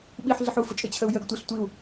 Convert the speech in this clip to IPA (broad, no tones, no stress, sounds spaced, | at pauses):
ɓ i ħ ɮ ə ħ u f ə t͡ʃʼ ɪ t͡ɕʰ ə u̯ j ə ɡ tʷ ɪ ɬ tʷ i u̯